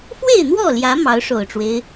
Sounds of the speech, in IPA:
f w e˥˨ ɪ̯ n̪ w ɔ˥˨ l j ä˨˦ m ɑ˨˦ ʊ̯ ʂ o˨˩ ʊ̯ ʈ͡ʂ w e˦ ɪ̯

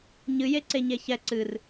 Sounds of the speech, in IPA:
ɲ ɨ j e ǀ e ɲ e ç ɛ ǀ ɨ r

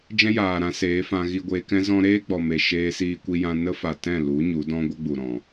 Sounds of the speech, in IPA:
d͡ʒ ɛ̃˦ j aː˨ ɾ ã˧ s eː˨˦ f ã˧ ɣ i˧ ɡʷ eː˧ k ɛ̃˦ z ɔ̃˧ ɾ eː˦ ɡ͡b ɔ˨ m e˨ ʃ eː˧ s iː˧ kʷ i˧ j ã˧ n ə˦ f a˨ t ɛ̃˦˨ l u˨˦ ɲ u˨˦ d ɔ̃˦ ɡʷ ə˦ ɡ͡b u˨ ɾ ɔ̃˨

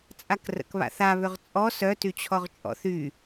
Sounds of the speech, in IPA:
t͡sʼ a k r ə̰ k β a̰ θ a β ʏ ʁ t͡sʼ ɔ s œ t y t͡ɕʰ ɔ ʁ t͡ʃʼ ɔ̰ θ y

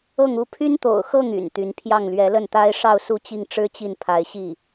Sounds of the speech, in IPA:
ɤ˥˧ ŋ u˥˩ pʰ y˥ n t̪ o̰˨˩ ʊ̯ x ɤ˥˩ ŋ y̰˨˩ n t̪ y˧˥ n pʰ j ɑ˥˩ ŋ l ɥ ɛ˧˥ l ə˥˩ n t̪ a˥ ɪ̯ ʂ ɑ˥˧ ʊ̯ s u˥˧ t͡ɕ i˥˩ ŋ ʈ͡ʂ ɻ̩˥ t͡ɕ i˥˩ n pʰ a˧˥ ɪ̯ ɕ i˥˩

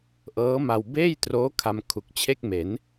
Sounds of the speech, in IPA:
ʔ ɤː˦˥ m a˧ w b eː˥˩ j t r oː˦˥ kʰ a˧ m kʰ u˨˩ k̚ t͡ɕʰ e˥˩ k̚ m e˩˦ n

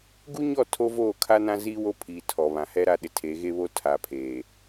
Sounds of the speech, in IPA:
ɡ u˦ ɲ ɔ˦˨ tʰ oː˦ v oː˦˨ kʰ a˦ n ã˦ z iː˦ w o˦ pʰ iː˨ tʰ ɔ˨ β ã˨ h ɛ˦ ɾ a˦ ɗ ɪ˨ tʰ eː˨˦ ɣ e˦ β o˦ tʰ a˨ pʰ eː˨

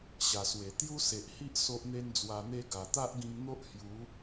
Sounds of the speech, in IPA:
ɕ a˨˩ s w e˨˩ t̪ j u˦ s e˨ ʔ h i˦ ʔ s o˦ ʔ n̪ e˦ n d͡z w a˧ n̪ e˦ ɡ a˨˩ t̪ a˦ ʔ ɡ ĩ˧ ŋ n̪ o˦ ʔ h j u˨˦

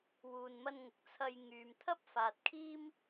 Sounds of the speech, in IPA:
w uː˨ n m ɐ˧ n ŋ ʊ˨ k̚ t͡sʰ ɐ˧ j ŋ yː˨ m t̪ʰ ɐ˥ p̚ f aː˨ t̚ kʰ iː˥ m

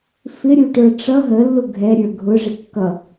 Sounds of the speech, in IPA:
f ɪ ɾʲ u ʈ ə˞ ʈ͡ʂ ʌ ɦ ə lː ʊ ɡʱ ɛ ɾʲ ə˞ ɡʱ ʊ ʐ ɪ kː ʌ

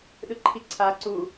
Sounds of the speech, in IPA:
ɗ ɯ ǃʰ i ǀʰ a ǀ u

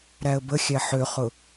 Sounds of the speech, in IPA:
ɾ æ ə̯ b ə xʲ æ ħ ø χ ʊ

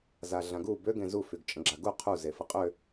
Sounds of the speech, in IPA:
z a ɮ ã ɡ u b ø ɡ ẽ z u f y ɡ t͡ʃʼ ə̃ ɡ͡ǁ a ɡ u qʰ u z e f ə qʼ ø

